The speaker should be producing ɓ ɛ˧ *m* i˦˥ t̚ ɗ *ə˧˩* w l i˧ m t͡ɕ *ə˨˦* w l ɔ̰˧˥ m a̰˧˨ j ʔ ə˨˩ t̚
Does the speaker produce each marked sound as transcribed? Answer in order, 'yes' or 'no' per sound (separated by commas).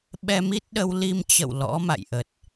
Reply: yes, no, no